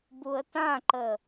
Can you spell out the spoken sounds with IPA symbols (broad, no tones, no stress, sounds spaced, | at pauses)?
b u ə̯ t ã ǃ ə